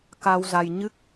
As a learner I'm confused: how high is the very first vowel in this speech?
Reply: low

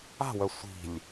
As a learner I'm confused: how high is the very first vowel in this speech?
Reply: low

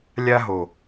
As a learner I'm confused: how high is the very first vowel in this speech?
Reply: low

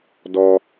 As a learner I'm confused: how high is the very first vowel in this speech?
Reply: mid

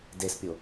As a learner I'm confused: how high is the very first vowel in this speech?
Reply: mid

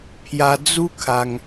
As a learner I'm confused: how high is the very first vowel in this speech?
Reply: low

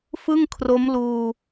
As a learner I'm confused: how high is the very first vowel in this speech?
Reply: high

